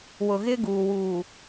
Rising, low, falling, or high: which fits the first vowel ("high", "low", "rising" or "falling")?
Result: low